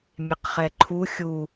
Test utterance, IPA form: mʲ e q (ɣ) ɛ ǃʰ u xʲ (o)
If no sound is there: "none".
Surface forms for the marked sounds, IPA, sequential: χ, u

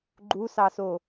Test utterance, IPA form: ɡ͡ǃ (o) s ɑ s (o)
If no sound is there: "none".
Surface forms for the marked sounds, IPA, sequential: u, o

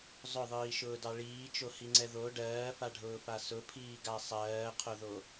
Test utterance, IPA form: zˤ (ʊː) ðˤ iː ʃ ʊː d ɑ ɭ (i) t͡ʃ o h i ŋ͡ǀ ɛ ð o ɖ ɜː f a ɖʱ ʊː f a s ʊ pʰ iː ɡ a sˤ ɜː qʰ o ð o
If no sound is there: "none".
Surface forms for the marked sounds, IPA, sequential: ʊ, iː

